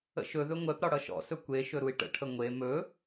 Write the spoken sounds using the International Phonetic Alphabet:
ə̰ʃɵðɵ ŋʷɛpɾɒ ɽʌʃɔ̰sɵ kʷe ʃɵɾui̯ʈə̰ʈʰə ŋʷe mɵ

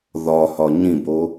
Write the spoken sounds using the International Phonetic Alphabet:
ðɒhɒ ɲĩbo

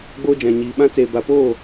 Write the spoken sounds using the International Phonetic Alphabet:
ɡ͡boː˦d͡ʒã˨ ɲiː˨ɓã˦ t͡seː˨ba˨poː˦˨

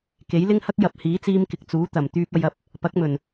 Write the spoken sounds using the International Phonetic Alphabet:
ke˨˥jlɪ˥ŋhɐ˥k̚ jɐ˨p̚hiː˨˥t͡siː˧m kɪ˨k̚t͡suː˨˥ t̪ɐ˨˩m t̪yː˧p̚ɐ˧jɐ˨˥p̚ | pɐ˨˥k̚mɵ˨˩n

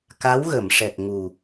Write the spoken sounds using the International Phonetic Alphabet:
ka˧˥wɣə˨˩˨m ʂɛ˨˩k̚ŋu˨˩

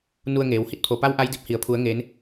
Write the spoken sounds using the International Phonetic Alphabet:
nu˧ə̯ŋeː˩w hi˧˥t̚pʰo˩pa˧˥w ʔa˧˥jdi˧˥p̚hi˩ə̯ pʰu˩˧ə̯ ŋeː˩˧n

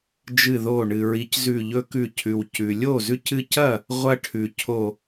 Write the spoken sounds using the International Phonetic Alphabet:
d͡ʒɨ˧˩ðo˧˩ɳɨ˩ ɹi˩˥czʉ˧˩ʎɵ˦kʉ˧˩ cʰʉ˩w cʉ˩lʲo˥˩zʉ˦cɨ˦ cɐ˥˩ | ʁʷɐ˦ʈʰʉ˩ cʰo˧˩

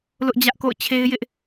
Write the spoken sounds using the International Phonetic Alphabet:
lʊ˦ʔd͡ʑä˦ʔ ko̰˦˨ʊ̯t͡ɕʰe˦ɪ̯jɪ˦ʔ

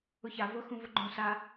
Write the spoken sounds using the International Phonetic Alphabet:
ʊça vʊ xũvʊɡ͡ǃõ sa

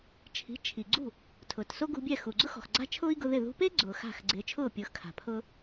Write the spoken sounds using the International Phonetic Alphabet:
t͡ʃʰi̤˩˥t͡ʃʰi˩ɡ͡ǀṳ˥˩ | tʰʊː˩tso˥ɡṳ˧bʲɛ˥˩ xu˩ɡ͡ǀʊ˥xɔ̤˩x ɡ͡ǀa̤˥t͡ʃʰʊː˥i̯ɡʊ˧ ðɪ˥˩ ðṳ˧pe˥ ɡ͡ǀʊː˩xa̤˥˩x ɡ͡ǀɪː˩˥t͡ʃʰʊː˥˩pʲʊː˩˥x kʰa̤˩pʰʊː˥

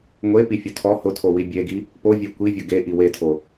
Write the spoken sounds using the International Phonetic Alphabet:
ŋʷepifʲʊ tʰɔ hʊtʰowi bʲeɡi | povʲe kʷivʲʊ ɡeʔi wetʰo

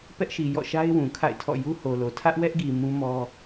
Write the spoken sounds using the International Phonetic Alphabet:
pɛ˦ʔʃi˨jɔ̰˦˨ ʃa˦ɪ̯wũ˨ kʰa̰˦˨ɪ̯tʰɔ̰˦˨ ju˦ho˨lo˨ tʰä˦ʔwɛ˦ʔɡi˨ mũ˦mɔ˦

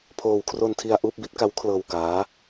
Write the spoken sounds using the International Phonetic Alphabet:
pʰoː˧w kʰro˧ntʰi˧a̯ ʔuː˥˩p̚bi˦˥t̚ka˦˥w kʰlɤː˧wkaː˦˥

